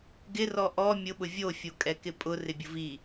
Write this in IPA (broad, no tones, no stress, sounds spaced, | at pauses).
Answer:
ɡ ɪ r ɔ ʔ ɔ mʲ ʊ ɓ ʊ vʲ o fʲ o kʼ ɛ k ɪ pʼ ʊ r ɪ bʲ ʊ v i